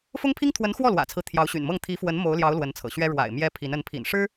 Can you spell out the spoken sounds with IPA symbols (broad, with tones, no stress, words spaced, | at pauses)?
fʊ˥ŋpʰi˥ŋt̪ʰwə˧˥n xwɔ˥˩lwä̰˨˩t͡sʰɹ̩˦ t̪ʰjɑ˧˥ʊ̯ɕy̰˨˩nmɤ˥˩ŋ t̪ʰi˧˥fwə˧˥n mo˧˥ʊ̯ljɑ˧˥ʊ̯ lwə˧˥nt͡sʰɤ̰˨˩ɕɥɛ˥ ɻwa̰˨˩ɪ̯ mjɛ˧˥ pʰi˧˥n ə˧˥npʰḭ˨˩nʂɻ̩˥